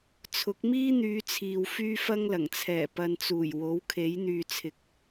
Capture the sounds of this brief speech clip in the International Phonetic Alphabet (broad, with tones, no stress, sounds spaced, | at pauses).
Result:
t͡sʰ ʊ˨˥ k̚ m iː˥ n̪ yː˨˧ t͡sʰ iː˨ w f yː˥ f ɐ˥ ŋ l ɐ˨˩ ŋ t͡sʰ ɛː˨˩ p ɐ˨ n t͡s uː˨˩ j w o˨˥ w kʰ e˨˥ j n̪ yː˨ t͡sʰ ɪ˨ k̚